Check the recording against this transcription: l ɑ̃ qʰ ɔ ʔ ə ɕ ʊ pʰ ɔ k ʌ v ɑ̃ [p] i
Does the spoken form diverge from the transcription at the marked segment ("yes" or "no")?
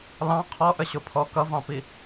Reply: no